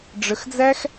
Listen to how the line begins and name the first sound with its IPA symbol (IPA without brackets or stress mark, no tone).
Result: ɖ͡ʐ